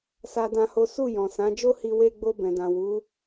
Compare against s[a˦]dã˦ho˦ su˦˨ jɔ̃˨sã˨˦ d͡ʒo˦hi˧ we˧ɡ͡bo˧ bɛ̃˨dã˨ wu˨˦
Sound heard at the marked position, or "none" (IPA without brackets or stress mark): a˦